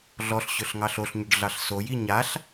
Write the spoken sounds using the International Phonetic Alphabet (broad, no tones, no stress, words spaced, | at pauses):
ɮɔɬɕɵɬŋɑɬ oɬɲɵɖɮɑɬ soji ɲaɬ